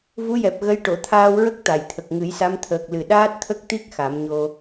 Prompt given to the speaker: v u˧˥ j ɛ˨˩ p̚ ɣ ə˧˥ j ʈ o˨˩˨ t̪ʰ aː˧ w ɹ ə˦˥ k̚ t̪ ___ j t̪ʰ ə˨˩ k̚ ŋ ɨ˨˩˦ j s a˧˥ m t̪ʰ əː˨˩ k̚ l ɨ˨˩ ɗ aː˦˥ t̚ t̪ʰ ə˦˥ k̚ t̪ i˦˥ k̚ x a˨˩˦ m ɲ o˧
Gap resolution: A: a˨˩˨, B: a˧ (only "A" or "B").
A